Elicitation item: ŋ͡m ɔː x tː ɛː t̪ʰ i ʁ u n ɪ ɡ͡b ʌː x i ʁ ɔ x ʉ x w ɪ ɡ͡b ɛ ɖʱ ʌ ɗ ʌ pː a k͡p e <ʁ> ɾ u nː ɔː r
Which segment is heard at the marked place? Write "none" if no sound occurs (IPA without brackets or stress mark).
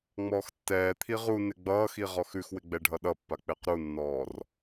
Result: q